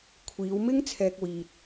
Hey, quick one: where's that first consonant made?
velum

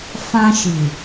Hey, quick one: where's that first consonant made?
lips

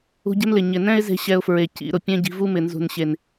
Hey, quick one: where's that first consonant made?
palate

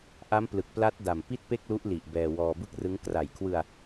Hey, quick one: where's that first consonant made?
throat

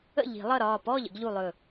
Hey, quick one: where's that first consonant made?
palate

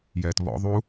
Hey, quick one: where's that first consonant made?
palate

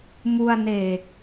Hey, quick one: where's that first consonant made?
lips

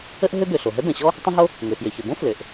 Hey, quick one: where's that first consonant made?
throat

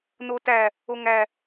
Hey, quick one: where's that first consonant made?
tongue tip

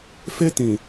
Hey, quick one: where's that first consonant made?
lips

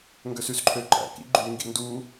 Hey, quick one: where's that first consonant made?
velum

